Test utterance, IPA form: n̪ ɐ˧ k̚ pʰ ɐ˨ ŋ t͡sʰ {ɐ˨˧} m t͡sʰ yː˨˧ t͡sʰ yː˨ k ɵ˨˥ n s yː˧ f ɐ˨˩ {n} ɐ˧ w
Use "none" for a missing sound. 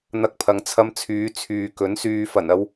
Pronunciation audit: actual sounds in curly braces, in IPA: ɐ˧, n

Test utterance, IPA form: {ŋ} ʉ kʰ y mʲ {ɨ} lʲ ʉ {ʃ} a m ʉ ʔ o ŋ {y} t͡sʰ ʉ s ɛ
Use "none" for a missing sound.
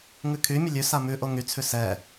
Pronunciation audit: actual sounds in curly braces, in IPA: ŋ, ə, s, y

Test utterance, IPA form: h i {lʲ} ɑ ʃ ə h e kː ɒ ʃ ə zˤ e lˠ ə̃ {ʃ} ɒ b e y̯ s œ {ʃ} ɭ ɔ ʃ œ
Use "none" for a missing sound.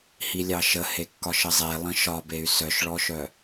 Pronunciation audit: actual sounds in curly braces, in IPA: lʲ, ʃ, ʃ

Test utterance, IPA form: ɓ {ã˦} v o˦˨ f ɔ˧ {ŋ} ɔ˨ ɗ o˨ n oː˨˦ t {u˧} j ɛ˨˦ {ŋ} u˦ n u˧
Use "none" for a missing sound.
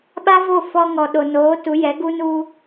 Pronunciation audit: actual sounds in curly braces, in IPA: a˦, ŋ, u˨˦, ɡ

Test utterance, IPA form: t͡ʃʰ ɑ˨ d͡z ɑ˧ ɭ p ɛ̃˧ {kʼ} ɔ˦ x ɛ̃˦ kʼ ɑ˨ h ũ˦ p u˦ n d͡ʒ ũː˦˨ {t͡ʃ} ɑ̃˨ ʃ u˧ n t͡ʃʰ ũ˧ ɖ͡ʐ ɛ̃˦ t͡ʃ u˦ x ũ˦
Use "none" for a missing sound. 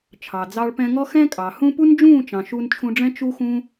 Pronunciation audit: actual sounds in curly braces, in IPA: ŋ, t͡ʃ

